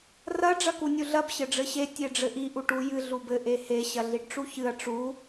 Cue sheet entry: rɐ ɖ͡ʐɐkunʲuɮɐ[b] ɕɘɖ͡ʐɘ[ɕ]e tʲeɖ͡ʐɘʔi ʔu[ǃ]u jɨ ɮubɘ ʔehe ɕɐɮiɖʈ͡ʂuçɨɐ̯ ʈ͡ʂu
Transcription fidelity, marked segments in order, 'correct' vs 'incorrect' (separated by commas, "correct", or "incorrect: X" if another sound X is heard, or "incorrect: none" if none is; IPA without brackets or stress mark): correct, correct, incorrect: ʈ